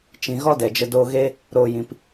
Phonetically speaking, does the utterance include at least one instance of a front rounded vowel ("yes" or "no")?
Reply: no